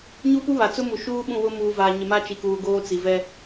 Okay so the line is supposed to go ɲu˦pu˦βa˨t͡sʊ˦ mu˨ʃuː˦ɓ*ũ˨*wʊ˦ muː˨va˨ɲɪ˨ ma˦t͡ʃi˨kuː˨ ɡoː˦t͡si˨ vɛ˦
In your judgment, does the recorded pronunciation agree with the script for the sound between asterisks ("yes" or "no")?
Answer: no